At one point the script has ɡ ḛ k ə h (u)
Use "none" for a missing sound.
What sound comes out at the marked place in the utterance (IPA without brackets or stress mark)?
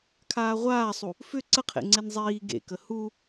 u